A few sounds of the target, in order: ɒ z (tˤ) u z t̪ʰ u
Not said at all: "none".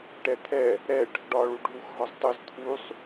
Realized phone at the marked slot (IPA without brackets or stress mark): tˤ